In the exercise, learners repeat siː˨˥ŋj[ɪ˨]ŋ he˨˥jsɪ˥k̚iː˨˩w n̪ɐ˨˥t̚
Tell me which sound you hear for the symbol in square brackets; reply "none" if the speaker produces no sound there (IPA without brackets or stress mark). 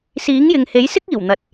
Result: ɪ˨